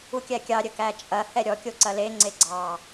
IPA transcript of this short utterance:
u kʲ æ kʲ ɑ ɾʲ ə k æ t͡ʃʼ ɐ h ɛ ɾʲ ɔ kʲ o ǀ ɐ l e ŋ͡ǀ e ɡ͡ǀ ɑ

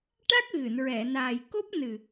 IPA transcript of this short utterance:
ʈ a˦˥ k̚ ɣ ɨ˨˩˨ n ɹ ɛ˨˩˨ n aː˨˩ j k o˦˥ p̚ n ɨ˨˩

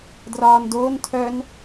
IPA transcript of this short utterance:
d r ɒː n d oː n tʰ œ n

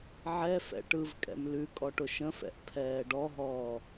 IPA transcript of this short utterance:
ʕ ɛ f ɛ̰ ʈ ɯ v kʼ ɛ̰ m l ʉ kʼ ɔ ʈ ʊ ʃ ə̃ f ɛ̰ ʔ pʰ ɛː ɖ ɔ ɦ ɔː

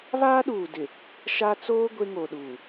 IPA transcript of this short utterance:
β aː˦ ɗ uː˨ d ɪ˨ | ʃ a˦ t͡s oː˦ ɡʷ e˦ ŋ o˨ ɗ uː˨

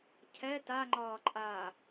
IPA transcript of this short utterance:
cʰ ɛ t a ŋ͡ǃ ɒː ǃʼ aː

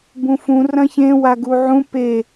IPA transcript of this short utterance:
b ũ f ũ r ɐ̃ ç ẽ w a ɡ u ʕ ũ p e

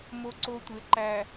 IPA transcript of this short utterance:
m o˦ ǀ o˦ tʷ e˨ ǃ æ˨

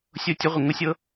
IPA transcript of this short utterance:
sʲ o˥˩ tʲ ə˦˥ ʁʷ ə˧˩ ŋ ʊ˦˥ sʲ ɤ˦˥

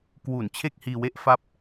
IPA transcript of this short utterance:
k w u˩˦ n t͡ɕʰ e˥˩ k̚ h iː˧ w e˥˩ ʔ f a˥˩ p̚

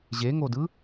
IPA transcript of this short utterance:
ʑ e ŋ o d ɯ

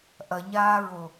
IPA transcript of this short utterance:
ʔ ɐ ɲ aː ɹ o

